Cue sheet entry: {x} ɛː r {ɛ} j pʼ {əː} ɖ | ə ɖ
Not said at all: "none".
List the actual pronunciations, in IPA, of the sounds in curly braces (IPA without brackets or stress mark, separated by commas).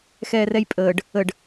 x, ɛ, əː